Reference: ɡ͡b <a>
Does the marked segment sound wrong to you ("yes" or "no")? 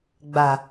no